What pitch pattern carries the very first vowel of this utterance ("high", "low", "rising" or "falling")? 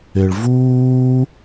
low